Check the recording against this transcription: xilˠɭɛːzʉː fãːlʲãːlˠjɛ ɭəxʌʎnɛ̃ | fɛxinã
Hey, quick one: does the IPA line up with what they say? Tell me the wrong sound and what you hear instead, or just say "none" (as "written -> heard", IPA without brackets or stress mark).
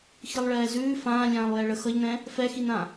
none